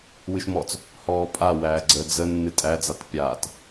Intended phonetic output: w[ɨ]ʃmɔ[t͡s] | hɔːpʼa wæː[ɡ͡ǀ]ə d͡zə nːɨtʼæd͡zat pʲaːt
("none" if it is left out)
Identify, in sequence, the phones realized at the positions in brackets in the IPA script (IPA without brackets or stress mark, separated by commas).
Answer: ɨ, t͡s, ɡ͡ǀ